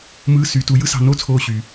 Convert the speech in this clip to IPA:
m ɯː˧˥˧ s y˩˥ t u˩˥ j ɯ˥ s ɑ̤˦˨ n oː˥ t͡sʰ oː˦˨ ɕ y˩

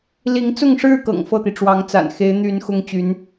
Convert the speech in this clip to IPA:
l i˧˥ ŋ t͡s ʊ˥˧ ŋ ʂ ɻ̩˥˩ k ɤ̰˨˩ ŋ f ɤ˥˩ t̪ i˩ ʈ͡ʂ w ɑ˧˥ ŋ t͡s a̰˨˩ n x e˧˥ ɪ̯ n̪ y˧˥ n x ʊ˥ ŋ t͡ɕ y˧˥ n

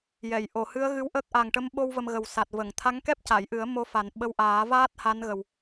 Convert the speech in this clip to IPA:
j ɛ˨˩˨ j ʔ o˨˩˨ h ɨ˧˥ ə̯ ɣ ɨ˧˥ w ʔ əː˦˥ k̚ ʔ a˨˩ ŋ ʈ ə˧˥ m ɓ o˧ w v ə˧ m ɣ ə˨˩ w s a˨˩ t̚ v ə˨˩˨ ŋ t̪ʰ a˧˥ ŋ k ɛ˦˥ p̚ c a˨˩˨ j ʔ ɨ˨˩˦ ə̯ m o˧˥ f a˨˩ n ɓ ə˧ w ʔ aː˨˩˦ v aː˦˥ t̚ h a˧˥ n ɣ ə˨˩ w

